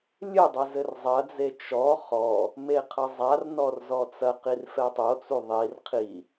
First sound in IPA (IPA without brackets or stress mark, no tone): lʲ